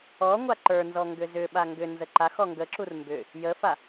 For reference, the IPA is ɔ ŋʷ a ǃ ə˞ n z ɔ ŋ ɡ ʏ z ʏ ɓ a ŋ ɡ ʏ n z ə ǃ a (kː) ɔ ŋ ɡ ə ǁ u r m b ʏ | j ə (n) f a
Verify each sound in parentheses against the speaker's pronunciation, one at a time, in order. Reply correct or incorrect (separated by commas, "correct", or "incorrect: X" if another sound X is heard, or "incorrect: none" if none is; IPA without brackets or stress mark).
incorrect: x, incorrect: none